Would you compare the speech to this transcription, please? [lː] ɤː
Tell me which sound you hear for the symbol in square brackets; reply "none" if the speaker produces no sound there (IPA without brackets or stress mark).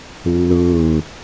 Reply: lː